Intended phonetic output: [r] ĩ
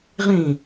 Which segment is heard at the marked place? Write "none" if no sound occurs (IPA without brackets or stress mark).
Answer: ʁ